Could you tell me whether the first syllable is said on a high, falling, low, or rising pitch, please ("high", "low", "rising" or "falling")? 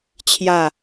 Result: falling